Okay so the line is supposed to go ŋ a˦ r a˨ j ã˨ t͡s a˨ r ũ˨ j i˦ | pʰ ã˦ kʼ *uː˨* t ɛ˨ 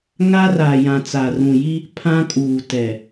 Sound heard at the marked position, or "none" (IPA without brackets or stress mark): uː˨